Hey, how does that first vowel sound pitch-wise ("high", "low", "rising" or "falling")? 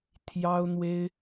high